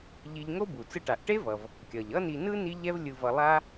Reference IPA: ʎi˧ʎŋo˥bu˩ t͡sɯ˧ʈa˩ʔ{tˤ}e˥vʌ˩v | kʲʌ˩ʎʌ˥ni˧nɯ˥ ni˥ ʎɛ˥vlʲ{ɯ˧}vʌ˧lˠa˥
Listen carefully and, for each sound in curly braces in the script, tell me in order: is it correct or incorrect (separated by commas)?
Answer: incorrect, correct